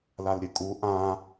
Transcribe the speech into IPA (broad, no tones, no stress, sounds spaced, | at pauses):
l a l ɾʲ ɨ kʼ u ʔ ã